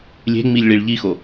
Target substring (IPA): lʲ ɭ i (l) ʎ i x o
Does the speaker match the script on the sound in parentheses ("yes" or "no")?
no